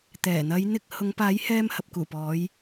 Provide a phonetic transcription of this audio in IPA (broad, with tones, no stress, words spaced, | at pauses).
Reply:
t̪ɛː˨˩n̪ɐ˨˧j n̪ɪ˧k̚ hʊ˨˧ŋpaː˨˥jhɛː˧m hɐ˨p̚kuː˨˩pɔː˨˧j